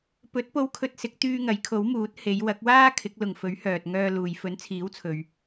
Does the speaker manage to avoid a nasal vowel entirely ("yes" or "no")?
yes